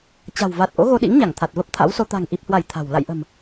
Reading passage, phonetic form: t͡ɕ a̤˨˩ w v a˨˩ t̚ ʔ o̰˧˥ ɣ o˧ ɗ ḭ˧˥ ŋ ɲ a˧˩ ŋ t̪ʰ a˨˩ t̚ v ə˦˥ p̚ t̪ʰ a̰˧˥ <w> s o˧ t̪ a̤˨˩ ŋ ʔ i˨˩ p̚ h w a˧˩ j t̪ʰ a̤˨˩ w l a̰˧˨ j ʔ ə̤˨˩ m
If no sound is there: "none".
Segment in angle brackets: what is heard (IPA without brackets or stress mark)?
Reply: w